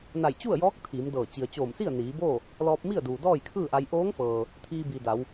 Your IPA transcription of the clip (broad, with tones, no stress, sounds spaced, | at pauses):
n a˧˩ j t͡ɕ u˥˨ ə̯ j ɔː˧˥ k̚ t̪ʰ iː˩˧ m d ɤː˧˩ t͡ɕ i˩ ə̯ t͡ɕ oː˧˩ m s i˥˨ ə̯ n iː˩˧ b oː˥˨ | l ɔː˧ p̚ m i˥˨ ə̯ d uː˩ d ɔː˥˨ j kʰ ɯː˥˨ ʔ a˧ j ʔ oː˧˥ ŋ f ɤː˩ | t̪ʰ iː˧ b i˩ d a˩˧ w